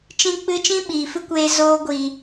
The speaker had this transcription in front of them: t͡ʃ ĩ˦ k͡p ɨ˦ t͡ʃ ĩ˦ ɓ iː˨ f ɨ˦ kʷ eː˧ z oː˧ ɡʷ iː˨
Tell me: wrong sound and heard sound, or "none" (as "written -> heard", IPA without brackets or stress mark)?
none